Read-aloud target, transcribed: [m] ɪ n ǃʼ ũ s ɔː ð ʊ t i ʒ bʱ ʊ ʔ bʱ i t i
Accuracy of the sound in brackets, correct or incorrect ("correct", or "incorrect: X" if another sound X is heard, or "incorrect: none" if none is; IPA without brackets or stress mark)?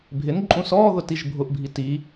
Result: incorrect: bʱ